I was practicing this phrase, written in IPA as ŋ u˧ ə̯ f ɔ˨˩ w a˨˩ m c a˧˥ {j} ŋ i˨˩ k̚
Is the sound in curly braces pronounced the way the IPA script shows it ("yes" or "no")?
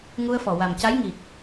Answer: yes